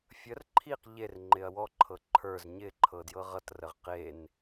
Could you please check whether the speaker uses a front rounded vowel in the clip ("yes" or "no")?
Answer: no